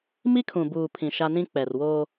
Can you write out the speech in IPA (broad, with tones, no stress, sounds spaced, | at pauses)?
m i˦ kʰ ũ˨ b uː˨ pʰ ĩ˨ ʃ a˦ n ĩ˦ k͡p ɛ˨ r w o˦